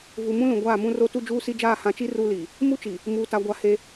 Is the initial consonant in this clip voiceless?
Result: no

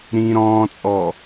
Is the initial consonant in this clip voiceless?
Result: no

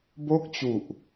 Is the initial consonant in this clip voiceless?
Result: no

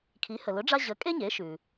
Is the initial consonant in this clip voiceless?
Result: yes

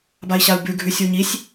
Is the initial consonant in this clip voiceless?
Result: no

